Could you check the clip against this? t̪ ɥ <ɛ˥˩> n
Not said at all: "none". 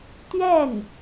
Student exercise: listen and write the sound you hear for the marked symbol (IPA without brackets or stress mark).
ɛ˥˩